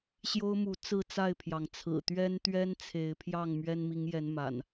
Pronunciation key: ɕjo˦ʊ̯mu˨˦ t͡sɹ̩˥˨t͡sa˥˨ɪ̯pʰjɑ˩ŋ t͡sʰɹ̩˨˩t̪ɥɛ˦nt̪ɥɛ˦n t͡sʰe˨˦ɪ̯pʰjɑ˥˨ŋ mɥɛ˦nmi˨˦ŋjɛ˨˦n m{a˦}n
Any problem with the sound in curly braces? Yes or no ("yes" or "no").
yes